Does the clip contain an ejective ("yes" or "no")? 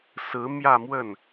no